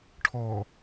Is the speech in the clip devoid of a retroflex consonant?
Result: no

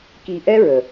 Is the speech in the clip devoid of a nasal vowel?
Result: yes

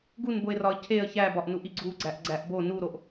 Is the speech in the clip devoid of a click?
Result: no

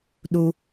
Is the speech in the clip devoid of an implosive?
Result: no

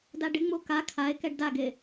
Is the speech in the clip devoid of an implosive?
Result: yes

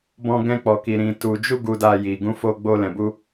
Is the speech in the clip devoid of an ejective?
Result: yes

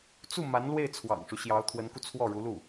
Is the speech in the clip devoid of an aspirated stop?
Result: no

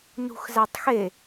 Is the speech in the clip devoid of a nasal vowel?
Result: yes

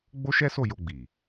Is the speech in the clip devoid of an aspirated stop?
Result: yes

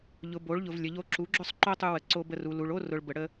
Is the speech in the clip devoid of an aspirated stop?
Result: yes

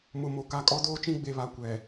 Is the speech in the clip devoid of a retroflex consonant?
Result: yes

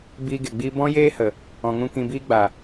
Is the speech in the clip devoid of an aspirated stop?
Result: yes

